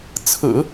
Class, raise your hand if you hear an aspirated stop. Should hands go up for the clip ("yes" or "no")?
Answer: yes